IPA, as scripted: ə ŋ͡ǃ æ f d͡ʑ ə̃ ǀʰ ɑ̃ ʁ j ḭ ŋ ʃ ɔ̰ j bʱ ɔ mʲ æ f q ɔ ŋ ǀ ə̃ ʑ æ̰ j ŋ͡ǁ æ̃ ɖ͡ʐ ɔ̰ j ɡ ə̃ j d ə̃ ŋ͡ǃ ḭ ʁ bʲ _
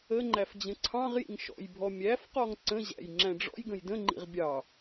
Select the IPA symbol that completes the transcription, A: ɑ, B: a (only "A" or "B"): A